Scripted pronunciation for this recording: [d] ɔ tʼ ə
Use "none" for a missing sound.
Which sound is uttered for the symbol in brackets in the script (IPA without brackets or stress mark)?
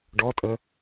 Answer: ɖ